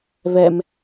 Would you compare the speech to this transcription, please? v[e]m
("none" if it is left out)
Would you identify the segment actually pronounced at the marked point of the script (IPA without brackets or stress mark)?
ɛ